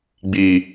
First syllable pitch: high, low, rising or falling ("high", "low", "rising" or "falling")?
low